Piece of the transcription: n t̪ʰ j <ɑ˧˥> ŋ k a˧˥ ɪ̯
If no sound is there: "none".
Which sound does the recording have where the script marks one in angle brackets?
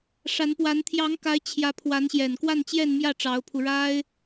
ɑ˧˥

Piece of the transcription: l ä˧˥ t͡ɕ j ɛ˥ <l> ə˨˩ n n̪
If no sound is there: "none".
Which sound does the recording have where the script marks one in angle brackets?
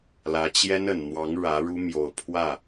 n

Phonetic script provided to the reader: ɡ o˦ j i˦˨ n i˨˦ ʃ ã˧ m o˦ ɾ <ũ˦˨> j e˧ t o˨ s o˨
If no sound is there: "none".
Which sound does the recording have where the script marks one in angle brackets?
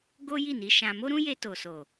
ũ˦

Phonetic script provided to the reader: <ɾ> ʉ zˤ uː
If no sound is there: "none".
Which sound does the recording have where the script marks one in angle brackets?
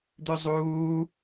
d̪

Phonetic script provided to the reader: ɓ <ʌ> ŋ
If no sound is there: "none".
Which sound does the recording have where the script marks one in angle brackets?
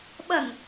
ʌ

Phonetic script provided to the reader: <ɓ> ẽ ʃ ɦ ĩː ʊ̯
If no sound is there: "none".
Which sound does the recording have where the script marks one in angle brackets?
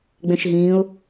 ɡ͡b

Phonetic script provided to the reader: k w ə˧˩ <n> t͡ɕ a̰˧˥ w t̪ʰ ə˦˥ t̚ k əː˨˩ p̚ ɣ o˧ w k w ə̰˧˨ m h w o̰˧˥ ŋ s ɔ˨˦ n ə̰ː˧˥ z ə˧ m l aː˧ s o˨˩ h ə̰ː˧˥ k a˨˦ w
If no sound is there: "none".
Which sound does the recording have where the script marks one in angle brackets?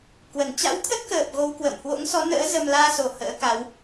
n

